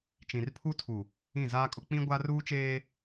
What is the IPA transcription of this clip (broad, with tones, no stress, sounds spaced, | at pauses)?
t͡ʃ ĩ˨ r pʰ u˦ tʰ u˨ | ĩ˦˨ z aː˦ kʼ ʊ˦ k͡p ĩ˦ ɡʷ a˦ r uː˦ t͡ʃ eː˦